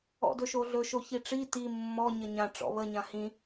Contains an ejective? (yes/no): no